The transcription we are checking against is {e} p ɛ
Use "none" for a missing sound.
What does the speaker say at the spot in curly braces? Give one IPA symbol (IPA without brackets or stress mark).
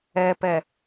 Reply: ɛ